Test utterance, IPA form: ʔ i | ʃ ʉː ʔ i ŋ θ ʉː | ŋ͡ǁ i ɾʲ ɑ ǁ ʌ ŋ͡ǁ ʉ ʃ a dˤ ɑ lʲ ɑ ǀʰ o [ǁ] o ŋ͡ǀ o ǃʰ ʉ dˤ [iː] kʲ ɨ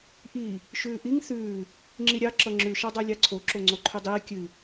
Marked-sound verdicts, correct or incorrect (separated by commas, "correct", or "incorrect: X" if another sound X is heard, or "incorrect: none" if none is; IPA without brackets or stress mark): correct, correct